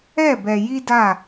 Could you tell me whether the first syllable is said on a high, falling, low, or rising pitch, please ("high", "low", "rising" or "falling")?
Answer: falling